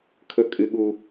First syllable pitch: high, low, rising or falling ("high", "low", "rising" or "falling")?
high